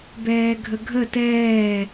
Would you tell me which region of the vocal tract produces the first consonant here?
lips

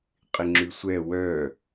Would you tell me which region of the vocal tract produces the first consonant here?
uvula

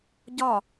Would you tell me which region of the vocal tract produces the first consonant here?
palate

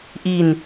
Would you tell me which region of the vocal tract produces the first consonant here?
throat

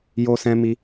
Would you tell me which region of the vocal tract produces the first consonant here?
palate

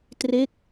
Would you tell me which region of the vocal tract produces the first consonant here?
tongue tip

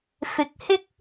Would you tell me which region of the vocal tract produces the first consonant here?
lips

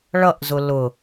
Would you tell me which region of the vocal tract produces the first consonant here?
retroflex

